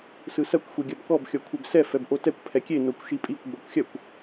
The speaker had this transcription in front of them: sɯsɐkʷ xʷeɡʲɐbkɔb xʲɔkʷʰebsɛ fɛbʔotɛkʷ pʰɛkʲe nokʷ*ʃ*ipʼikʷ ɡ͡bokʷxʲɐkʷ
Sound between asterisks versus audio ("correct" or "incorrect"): correct